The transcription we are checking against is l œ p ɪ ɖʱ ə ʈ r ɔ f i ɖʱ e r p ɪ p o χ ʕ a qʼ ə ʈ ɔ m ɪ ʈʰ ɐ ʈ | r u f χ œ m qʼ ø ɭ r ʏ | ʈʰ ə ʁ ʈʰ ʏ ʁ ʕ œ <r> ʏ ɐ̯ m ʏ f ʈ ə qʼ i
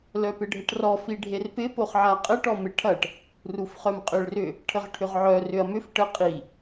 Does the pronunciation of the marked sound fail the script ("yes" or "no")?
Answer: no